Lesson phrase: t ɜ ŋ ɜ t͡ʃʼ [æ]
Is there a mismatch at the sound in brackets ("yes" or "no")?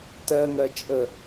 yes